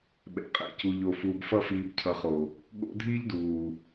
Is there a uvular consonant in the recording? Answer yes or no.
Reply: yes